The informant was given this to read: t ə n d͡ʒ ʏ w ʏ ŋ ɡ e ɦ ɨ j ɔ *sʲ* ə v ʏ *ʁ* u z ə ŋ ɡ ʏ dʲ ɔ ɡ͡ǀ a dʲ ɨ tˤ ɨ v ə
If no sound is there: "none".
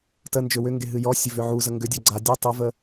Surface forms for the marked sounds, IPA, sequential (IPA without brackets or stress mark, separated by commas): sʲ, ʕ